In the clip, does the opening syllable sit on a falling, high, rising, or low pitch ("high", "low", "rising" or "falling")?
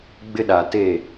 high